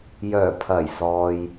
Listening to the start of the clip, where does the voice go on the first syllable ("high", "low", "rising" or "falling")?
low